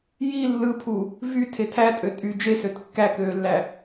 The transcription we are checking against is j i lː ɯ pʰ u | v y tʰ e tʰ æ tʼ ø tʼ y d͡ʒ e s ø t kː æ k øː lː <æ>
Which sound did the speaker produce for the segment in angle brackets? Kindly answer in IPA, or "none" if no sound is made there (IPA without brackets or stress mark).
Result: æ